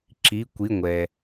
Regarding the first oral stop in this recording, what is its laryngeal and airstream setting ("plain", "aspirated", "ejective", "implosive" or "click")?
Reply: click